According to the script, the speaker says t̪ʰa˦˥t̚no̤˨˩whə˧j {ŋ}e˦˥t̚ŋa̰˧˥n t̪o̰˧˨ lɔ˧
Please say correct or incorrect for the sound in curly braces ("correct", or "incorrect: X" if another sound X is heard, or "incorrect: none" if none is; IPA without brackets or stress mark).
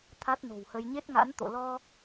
incorrect: ɲ